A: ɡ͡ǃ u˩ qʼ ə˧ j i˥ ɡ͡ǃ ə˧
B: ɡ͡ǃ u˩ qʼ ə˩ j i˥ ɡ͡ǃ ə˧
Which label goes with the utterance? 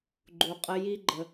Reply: A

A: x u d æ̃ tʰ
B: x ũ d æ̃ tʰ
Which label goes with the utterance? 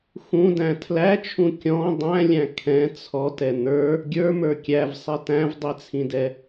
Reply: B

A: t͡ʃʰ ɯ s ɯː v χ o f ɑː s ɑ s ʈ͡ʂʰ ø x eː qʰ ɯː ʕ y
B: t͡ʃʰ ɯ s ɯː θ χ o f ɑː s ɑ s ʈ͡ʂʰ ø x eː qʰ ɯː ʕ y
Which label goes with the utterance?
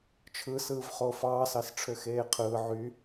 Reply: A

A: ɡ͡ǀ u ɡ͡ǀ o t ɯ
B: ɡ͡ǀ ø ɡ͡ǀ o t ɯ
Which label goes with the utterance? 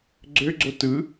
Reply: B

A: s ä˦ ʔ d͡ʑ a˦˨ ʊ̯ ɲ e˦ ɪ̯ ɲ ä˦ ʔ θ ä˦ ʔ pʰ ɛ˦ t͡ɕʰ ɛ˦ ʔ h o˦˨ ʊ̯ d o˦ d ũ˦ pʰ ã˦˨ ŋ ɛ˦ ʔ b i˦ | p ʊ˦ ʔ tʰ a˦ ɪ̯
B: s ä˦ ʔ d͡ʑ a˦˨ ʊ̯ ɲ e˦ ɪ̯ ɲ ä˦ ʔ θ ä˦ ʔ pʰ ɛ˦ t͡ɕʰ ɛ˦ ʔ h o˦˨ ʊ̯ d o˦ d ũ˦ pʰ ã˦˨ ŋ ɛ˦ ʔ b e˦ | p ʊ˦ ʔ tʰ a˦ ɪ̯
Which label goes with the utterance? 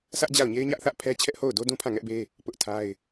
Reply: B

